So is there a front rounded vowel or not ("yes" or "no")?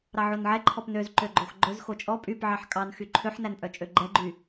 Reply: yes